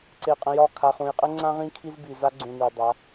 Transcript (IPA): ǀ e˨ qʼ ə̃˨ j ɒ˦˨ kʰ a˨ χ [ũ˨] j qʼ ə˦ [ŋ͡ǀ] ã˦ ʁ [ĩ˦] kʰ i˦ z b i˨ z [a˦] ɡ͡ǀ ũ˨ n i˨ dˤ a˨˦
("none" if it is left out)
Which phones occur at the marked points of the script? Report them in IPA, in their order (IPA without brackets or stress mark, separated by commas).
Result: ũ˨, ŋ͡ǀ, ĩ˦, a˦